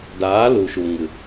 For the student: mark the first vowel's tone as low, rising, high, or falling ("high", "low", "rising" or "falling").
rising